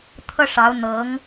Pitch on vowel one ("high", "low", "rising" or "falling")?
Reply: high